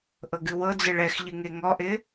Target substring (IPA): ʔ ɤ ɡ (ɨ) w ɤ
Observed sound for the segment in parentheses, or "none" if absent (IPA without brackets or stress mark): ɨ